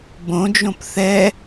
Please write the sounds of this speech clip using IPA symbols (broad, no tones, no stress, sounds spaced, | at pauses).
b õ d͡ʒ õ p θ ɛ